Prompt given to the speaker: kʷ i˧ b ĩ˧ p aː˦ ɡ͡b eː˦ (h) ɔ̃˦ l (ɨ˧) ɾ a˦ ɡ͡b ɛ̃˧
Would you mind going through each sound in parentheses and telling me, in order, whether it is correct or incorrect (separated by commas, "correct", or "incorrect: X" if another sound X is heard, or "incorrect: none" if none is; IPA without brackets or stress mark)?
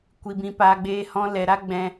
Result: correct, incorrect: ɛ˧